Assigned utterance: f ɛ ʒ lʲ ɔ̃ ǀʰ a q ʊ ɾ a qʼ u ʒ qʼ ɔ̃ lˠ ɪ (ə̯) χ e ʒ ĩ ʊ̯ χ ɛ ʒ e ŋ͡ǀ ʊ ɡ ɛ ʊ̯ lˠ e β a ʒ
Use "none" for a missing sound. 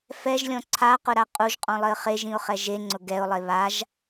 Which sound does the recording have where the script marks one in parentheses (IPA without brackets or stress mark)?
ə̯